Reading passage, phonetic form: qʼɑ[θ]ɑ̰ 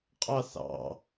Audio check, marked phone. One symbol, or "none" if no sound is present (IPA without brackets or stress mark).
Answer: θ